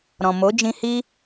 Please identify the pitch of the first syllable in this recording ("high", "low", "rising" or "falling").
low